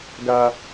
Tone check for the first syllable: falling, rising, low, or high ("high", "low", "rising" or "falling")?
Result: high